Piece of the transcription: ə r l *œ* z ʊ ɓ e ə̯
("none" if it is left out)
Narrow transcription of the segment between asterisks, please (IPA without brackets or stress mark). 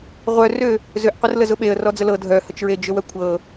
ə